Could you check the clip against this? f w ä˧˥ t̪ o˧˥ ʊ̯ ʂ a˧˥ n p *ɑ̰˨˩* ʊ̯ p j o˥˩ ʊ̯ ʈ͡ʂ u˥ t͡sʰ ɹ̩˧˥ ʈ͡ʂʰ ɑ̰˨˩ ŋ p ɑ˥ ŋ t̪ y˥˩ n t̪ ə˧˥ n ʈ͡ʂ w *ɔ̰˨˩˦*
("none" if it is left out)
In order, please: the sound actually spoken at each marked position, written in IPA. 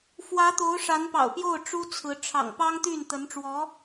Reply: ɑ̰˨˩, ɔ˧˥

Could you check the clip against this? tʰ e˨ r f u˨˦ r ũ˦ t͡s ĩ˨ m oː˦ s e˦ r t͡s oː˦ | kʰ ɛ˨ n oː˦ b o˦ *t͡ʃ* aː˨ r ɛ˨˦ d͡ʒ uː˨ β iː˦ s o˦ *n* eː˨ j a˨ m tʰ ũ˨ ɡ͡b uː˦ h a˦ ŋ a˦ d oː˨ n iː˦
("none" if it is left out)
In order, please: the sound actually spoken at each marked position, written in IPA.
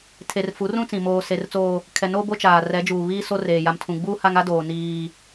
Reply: t͡ʃ, r

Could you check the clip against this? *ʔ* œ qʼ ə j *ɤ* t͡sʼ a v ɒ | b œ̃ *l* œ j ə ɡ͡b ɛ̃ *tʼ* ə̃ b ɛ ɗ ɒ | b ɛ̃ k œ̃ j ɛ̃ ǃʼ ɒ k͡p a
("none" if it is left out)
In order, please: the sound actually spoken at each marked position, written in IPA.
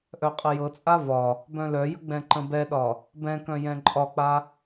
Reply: ʔ, ɤ, l, ǃ

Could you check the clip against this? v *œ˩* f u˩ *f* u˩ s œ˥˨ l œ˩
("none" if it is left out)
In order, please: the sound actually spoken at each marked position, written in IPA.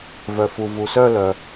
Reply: œ˩, v

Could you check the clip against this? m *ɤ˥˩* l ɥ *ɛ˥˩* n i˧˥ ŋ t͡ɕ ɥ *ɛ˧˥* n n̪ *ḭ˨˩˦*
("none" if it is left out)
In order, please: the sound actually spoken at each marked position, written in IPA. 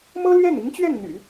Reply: ɤ˥, ɛ˥˩, ɛ˥˩, y̰˨˩˦

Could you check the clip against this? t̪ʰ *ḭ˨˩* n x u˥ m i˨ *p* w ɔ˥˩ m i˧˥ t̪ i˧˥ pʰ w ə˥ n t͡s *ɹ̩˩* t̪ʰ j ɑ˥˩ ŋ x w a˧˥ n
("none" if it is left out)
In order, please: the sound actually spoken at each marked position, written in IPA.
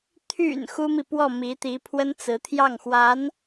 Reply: y̰˨˩, p, ɹ̩˧˥

